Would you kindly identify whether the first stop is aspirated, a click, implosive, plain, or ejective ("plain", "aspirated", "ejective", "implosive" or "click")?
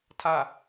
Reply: aspirated